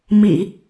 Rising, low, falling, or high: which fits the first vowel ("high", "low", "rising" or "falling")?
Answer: low